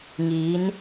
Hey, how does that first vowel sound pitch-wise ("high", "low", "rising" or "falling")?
rising